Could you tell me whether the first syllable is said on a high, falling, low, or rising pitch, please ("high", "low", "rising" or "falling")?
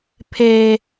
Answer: high